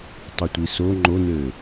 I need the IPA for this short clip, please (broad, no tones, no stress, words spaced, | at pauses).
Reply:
tˤɯtʷiso ŋ͡ǃonøː